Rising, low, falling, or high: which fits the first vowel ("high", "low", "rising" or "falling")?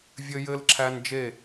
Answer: high